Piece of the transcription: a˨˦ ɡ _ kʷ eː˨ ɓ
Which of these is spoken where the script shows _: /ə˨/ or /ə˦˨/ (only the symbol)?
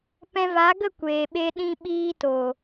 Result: ə˦˨